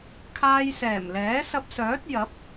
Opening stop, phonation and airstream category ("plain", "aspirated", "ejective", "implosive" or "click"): aspirated